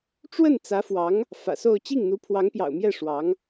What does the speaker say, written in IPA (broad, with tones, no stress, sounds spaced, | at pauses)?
ʈ͡ʂ w ə˥˩ n t͡s ä˧˥ f w ɑ˧˥ ŋ | f ä̰˨˩ s o˥˧ ʊ̯ t͡ɕ i˥˩ ŋ n̪ u˧˥ pʰ w ɑ˧˥ ŋ p j ɑ̰˨˩ ʊ̯ m j ɛ˥˩ ʂ w ɑ˧˥ ŋ